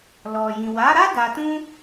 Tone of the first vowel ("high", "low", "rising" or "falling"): low